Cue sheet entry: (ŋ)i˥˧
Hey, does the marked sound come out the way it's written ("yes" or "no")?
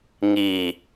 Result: yes